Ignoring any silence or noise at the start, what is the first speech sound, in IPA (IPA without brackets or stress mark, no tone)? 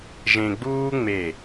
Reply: ʒ